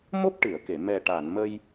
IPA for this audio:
mo˦˥p̚ʈɨ˨˩˨ə̯ke˨˩˨ mɛ˨˩ʈa˨˩˨n mə˧j

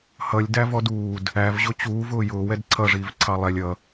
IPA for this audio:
hʌlʲdævɔd uːd | ævʑʊ t͡ɕuːvʊː jʊːwɛd ǀʰʌʐiːv ǀʰɑlˠɛlʲ ʌ

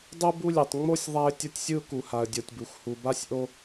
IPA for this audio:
dˤɯ˦bu˦lʲɛ˨tˤ ŋ͡mo˦sʲ ðˤa˦ɪ̯tʲʌ˦tʲsʲɯ˦ʊ̯ ku˨ha˨ə̯dʲo˨tʲbu˨x hu˨ba˦sʲʔo˦

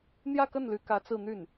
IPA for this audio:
n̪jä˥˧kə˥˩nly˧˥kä˧˥ t͡sɹ̩˥˧n̪y˥˩n

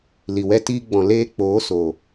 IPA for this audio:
li˨wɛ˧tiː˧ ɡ͡bɔ̃˨leː˧ k͡poː˨˦so˨

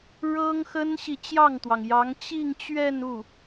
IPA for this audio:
ɻɤ˥ŋ xə˥nɕi˨ t͡ɕjɑ˥˩ŋt̪wɑ˩ŋjɑ˧˥ŋ t͡ɕi˥˧ŋ t͡ɕɥɛ˥˧nu˥˩

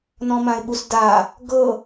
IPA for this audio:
nɔ̃mãɪ̯ɓusda | ɡɤ

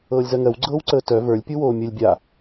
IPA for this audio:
ɤːlʲzɜŋɜw ɡ͡ǀɤːwǀəːtœ və˞lʲ pʲuwoːmʲəlʲ bʲa

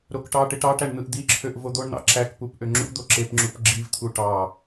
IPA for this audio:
ɾokʈɑʈeʈ ɑʈæɳ n̪ɯʔd̪iǁʰøʔ vod̪oɳn̪ɑ̰ ǁækpup ʔøŋ͡ǁṵd̪o ǁepŋ͡ǁup ɡ͡ǁivt̪ʰu ʈɑ

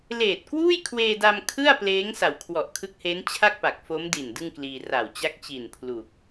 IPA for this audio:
leː˨˩t̚kwuː˥˩jkʰweː˧da˧m kʰɯ˥˩a̯pleː˦˥ŋ sa˨˩wkʰwɔ˨˩ʔkʰɯ˦˥k̚heː˦˥n t͡ɕʰa˥˩k̚pa˨˩k̚fo˦˥mdi˨˩n dɯ˥˩ŋkliː˧ ra˨˩wt͡ɕa˦˥k̚ t͡ɕi˨˩npʰlu˨˩k̚

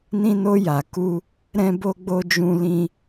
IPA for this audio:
nĩ˧no˧ ja˨ ku˧ | ɾɛ̃˧bo˧ɡ͡bo˧ d͡ʒũ˧ lĩ˧

